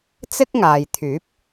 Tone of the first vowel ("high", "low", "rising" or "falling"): high